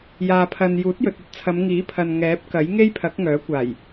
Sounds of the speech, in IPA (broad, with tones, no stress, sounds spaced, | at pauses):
j aː˨ pʰ ɐ˨ n j uː˨˥ t̚ j ɵ˨ t̚ ɐ˧ t̚ t͡sʰ ɐ˨˧ m ŋ iː˨˥ pʰ ɐ˨ n ŋ ɛː˨˥ p̚ k ɐ˨˥ j ŋ e˥ j pʰ ɐ˨˥ k̚ ŋ œː˨˥ kʷ aː˨˩ j